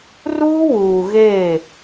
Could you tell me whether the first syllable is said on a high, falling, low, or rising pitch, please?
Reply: high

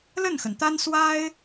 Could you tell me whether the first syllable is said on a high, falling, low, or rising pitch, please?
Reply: falling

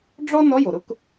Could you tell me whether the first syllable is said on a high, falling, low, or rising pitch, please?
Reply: high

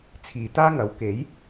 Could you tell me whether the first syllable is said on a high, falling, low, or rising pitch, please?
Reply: low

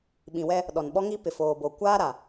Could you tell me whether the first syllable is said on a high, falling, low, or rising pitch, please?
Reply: low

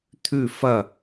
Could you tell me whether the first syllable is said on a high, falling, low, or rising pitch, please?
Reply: falling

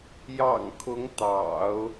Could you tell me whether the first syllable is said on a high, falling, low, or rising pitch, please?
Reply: low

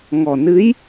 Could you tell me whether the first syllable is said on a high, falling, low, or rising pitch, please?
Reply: low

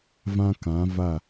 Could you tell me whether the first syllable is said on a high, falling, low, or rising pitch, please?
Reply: high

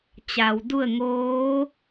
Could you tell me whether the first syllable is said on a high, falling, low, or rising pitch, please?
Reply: low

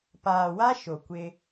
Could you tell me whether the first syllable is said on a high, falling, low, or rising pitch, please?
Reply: low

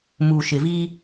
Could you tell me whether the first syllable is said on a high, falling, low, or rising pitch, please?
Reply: low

